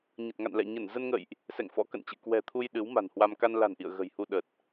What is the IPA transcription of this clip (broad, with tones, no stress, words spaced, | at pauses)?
ɲə˨˩t̚ŋa̰˧˨nlɛ̰˧˨ ɲə˧˩nzə˧nŋə̰˧˨jʔ | sɛ̰˧˨ŋfɔ̰˧˥kə̰˧˨nt͡ɕɨ̰˧˨ kwɛ̤˨˩t̪ʰu˧j ɗɨ˨˦wma̤˨˩nhwa˧m ka˧nla̤˨˩nʔḭ˧˨ə̯ ɣə̤˨˩jhu˧ ɗə˨˩t̚